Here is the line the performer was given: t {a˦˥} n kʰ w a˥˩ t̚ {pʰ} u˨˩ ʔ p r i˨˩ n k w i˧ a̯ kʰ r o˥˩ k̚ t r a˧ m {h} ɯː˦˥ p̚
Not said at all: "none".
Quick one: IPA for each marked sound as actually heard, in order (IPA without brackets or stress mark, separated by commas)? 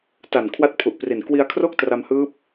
a˨˩, pʰ, h